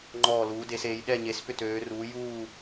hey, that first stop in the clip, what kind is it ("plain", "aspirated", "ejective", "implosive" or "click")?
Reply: click